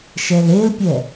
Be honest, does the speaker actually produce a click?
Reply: no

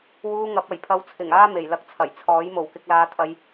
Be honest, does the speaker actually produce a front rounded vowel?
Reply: no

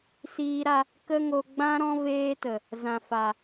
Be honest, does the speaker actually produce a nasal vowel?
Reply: yes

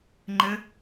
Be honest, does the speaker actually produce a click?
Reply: yes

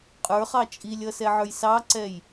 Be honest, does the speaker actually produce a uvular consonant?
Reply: yes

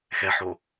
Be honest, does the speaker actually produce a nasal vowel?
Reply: no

